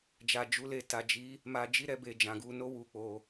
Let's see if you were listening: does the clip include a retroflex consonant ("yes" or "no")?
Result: no